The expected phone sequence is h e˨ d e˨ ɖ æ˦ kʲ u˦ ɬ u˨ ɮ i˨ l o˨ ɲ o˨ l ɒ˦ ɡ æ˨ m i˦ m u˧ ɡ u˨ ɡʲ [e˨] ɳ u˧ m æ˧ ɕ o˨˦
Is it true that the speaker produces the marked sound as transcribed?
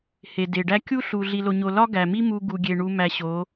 yes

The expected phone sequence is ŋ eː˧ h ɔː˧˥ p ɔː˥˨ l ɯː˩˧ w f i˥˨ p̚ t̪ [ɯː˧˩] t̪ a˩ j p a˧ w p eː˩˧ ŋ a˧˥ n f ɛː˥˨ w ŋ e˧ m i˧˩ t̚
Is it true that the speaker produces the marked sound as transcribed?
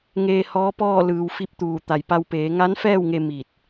no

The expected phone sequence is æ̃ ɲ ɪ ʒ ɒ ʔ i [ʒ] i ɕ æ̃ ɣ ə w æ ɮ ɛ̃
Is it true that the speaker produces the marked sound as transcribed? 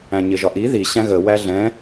no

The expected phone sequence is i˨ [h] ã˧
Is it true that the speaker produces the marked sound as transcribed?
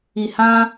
yes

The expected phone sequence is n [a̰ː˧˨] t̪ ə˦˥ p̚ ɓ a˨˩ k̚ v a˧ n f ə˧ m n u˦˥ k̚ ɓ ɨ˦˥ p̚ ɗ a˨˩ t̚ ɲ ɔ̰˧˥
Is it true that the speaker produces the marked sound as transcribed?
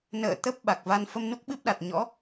no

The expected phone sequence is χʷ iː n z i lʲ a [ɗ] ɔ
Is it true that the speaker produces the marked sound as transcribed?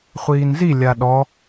yes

